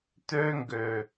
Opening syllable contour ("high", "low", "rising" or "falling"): high